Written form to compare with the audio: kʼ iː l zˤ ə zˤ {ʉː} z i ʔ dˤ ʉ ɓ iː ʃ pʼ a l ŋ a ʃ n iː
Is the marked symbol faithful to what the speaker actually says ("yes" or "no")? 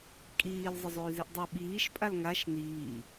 yes